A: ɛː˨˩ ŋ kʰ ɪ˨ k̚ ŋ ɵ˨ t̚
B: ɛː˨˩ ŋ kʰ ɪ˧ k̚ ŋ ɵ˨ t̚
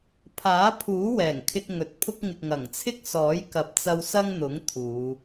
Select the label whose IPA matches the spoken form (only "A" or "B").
B